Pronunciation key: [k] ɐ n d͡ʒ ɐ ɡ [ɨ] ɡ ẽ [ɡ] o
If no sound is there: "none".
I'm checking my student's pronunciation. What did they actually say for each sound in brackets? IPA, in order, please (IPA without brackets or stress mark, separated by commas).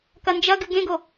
k, ɨ, ɡ